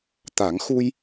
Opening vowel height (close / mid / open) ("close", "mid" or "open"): open